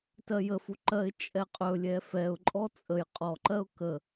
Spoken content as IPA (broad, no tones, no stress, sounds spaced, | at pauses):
t ɜ j ə f u ǃ ɜ ɪ̯ t͡ʃʼ ɛ qʼ ɵ lʲ ɛ f ɛ ʊ̯ ǃʼ ɔ t͡sʼ ə j qʼ ɔ ǃ ɜ ʊ̯ k ə